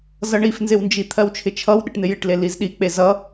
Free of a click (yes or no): yes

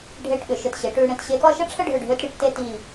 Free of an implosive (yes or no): no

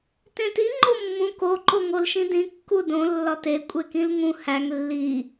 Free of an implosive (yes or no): yes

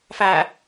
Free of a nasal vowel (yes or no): yes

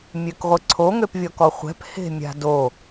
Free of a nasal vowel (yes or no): yes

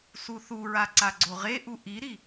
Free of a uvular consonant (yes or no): no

